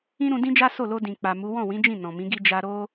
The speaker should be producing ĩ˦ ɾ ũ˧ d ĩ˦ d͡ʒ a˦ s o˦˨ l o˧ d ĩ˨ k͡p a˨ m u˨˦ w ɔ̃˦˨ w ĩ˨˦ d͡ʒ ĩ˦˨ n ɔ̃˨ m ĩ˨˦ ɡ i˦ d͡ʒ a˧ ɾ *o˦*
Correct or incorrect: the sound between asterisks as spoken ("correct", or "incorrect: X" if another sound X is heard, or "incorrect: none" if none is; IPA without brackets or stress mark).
correct